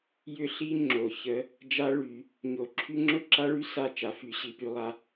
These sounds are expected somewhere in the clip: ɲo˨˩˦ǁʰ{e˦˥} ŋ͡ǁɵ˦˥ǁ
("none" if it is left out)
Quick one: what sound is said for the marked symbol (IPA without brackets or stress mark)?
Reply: y˦˥